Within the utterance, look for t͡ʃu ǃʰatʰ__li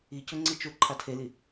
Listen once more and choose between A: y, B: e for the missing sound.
B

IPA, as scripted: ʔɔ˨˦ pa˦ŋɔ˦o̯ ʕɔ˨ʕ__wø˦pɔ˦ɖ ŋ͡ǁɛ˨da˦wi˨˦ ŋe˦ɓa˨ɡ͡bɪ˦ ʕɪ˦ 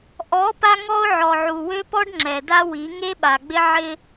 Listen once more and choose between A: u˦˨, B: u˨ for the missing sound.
B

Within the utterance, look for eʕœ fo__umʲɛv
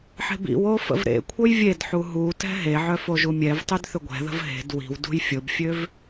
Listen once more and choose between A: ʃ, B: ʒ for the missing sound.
B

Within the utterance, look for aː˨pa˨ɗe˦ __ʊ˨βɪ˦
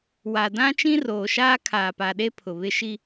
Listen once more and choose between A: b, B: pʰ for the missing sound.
B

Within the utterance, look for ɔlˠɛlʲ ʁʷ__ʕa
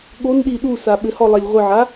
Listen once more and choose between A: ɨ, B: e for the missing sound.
A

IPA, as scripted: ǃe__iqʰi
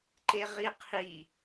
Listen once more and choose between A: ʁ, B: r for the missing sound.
A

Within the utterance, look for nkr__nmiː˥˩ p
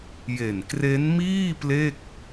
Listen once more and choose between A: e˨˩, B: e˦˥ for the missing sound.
B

